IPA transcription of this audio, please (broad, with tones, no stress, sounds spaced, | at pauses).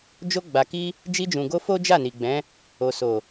d͡ʒ o˧ ɡ͡b a˨ k i˧ | d͡ʒ i˧ d͡ʒ ũ˨ ɡ o˧ f o˦ d͡ʒ a˦˨ n i˨ ɡ͡b ɛ̃˨˦ | o˨ s o˨